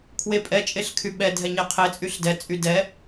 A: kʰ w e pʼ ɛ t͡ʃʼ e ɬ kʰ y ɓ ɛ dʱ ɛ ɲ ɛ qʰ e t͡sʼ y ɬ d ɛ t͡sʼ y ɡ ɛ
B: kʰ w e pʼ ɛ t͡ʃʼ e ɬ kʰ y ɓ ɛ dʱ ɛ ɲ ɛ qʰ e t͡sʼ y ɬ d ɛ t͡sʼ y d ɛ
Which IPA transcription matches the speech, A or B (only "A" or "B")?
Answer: B